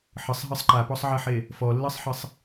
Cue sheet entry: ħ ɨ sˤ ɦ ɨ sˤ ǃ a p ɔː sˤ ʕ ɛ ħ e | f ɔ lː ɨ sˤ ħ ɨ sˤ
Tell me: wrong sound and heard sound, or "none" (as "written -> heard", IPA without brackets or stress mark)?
ɔː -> ɔ